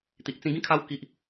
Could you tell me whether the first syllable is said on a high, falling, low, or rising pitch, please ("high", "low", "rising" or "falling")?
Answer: low